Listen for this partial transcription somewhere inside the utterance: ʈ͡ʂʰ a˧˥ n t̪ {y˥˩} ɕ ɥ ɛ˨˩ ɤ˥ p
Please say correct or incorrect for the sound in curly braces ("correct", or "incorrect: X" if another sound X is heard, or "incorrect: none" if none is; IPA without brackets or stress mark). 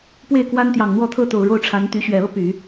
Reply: incorrect: y˧˥